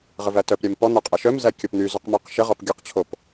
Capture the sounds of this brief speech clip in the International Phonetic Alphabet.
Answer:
ʁ ə v æ t œ p ɾʲ æ m p ɔ n̪ œ qʼ æ ʃ œ m z æ kʲ ɔ p n̪ y z œ q m œ q ʃ ə ʁ ɔ p ɡʲ o q t͡ɕʰ o p

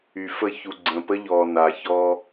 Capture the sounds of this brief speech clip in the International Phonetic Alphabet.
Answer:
y˨ f ə˦˨ ç u˨ ɡ͡ǀ ə̃ː˨ p ə˦ ʎ ɔː˨ n a˨ ç ɔː˦

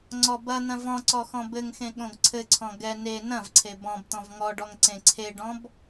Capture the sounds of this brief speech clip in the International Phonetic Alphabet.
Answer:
ŋ͡ǀ ɔ b ɐ n̪ ɐ̃ v ɔ̃ ǀ ɔ x ɔ̃ b ɘ ŋ x ẽ ɠ õ ɡ ǀʰ ɘ ǀʰ ɔ̃ ɡ ɛ n e n ɐ̃ v ǀʰ e b ɔ̃ b t̪ ɔ̃ v ŋ ɔ ɖ ɔ ŋ ǀ ẽ ǀʰ e ɖ ɔ̃ b

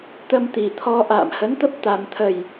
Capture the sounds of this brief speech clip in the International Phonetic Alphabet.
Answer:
t̪ ə˧ m t̪ i˨˩ t̪ʰ ɔ˧ ʔ a̰ː˧˨ m h ə˨˦ n t̪ ə˦˥ p̚ t̪ a˨˩ m t̪ʰ ə˨˩ j

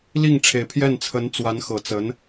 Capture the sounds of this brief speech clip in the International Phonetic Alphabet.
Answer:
l i˥˩ ŋ ʈ͡ʂʰ e˨˩ ɪ̯ pʰ j ɛ˥˩ n t͡sʰ ə˧˥ n t͡s w a˧˥ n x ɤ˨˩ t͡s ə˧˥ n

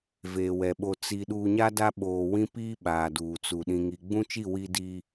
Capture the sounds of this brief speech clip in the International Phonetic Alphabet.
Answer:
v eː˨ w ɛ˨ ɓ o˨ t͡s i˨ ɗ uː˨ ɲ a˦ d a˦ ɓ oː˨ w ĩ˦ p iː˦ ɓ aː˨ d uː˨ t͡s u˨ ɗ ĩ˨ ŋ i˨ ɡ͡b ũ˦ t͡ʃ i˦˨ w i˦ d iː˦

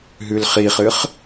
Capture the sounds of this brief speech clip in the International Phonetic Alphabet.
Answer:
ɦ ʉ l χ i χ ɨ χ

